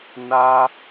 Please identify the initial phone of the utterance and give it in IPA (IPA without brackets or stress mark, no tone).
n